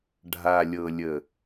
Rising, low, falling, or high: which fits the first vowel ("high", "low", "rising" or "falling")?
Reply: low